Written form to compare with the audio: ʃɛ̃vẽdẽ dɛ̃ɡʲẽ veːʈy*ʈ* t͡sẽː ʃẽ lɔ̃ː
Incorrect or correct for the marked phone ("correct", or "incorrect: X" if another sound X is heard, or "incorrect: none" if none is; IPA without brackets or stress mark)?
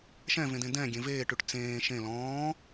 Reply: correct